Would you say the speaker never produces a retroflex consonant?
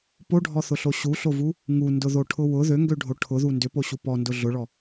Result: no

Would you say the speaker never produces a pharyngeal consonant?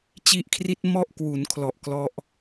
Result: yes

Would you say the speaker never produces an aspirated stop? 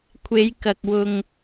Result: no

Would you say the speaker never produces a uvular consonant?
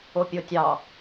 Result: yes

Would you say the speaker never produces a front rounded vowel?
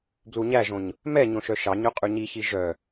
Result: no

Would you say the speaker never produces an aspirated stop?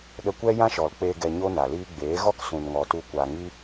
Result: yes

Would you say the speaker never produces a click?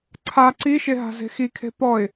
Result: no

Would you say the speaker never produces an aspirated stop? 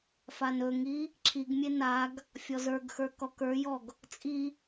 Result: no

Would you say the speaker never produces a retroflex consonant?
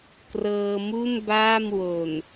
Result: yes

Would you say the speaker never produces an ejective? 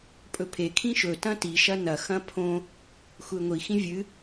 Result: no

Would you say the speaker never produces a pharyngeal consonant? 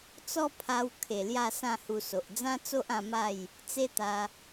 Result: yes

